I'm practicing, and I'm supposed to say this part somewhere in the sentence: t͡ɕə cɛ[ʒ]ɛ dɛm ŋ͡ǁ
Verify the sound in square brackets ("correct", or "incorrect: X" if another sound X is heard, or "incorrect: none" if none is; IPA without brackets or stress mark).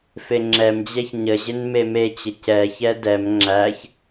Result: incorrect: ç